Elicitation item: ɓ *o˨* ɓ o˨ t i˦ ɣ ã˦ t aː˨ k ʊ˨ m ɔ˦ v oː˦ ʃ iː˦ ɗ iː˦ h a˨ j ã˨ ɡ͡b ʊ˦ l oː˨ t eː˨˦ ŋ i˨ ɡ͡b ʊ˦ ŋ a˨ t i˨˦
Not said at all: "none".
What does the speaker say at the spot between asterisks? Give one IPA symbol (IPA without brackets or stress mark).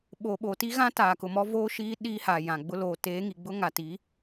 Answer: o˨